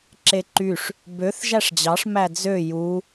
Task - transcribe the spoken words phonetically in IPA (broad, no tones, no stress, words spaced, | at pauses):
ǁeǃyʂ | bøθ ʒæʂd͡ʑɑʂ mæd͡zø ju